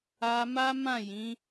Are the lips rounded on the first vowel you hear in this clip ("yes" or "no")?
no